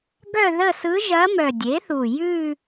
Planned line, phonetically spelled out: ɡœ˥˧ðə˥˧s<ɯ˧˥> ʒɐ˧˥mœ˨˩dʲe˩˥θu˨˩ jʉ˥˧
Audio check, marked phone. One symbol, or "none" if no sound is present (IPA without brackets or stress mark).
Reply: ɯ˧˥